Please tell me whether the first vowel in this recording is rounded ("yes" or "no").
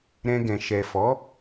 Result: no